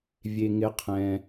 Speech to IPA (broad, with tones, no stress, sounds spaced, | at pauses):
vʲ e˩ ŋ ɪ˩˥ qʰ ɛ̃˩